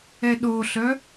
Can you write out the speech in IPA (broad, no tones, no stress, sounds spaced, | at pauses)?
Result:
ɛ ɗ o ɬ œ